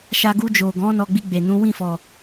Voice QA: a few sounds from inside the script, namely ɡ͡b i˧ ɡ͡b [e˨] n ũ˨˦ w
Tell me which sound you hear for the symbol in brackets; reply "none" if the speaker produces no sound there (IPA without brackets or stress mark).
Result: e˨